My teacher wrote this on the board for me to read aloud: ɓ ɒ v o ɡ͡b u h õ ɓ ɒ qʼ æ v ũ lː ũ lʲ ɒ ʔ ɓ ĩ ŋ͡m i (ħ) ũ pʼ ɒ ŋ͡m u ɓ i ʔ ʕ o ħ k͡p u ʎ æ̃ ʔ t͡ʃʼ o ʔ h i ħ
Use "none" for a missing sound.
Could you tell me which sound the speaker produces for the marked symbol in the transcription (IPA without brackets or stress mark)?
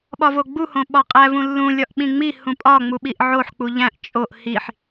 h